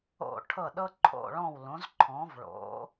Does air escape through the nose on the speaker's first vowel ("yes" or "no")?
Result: no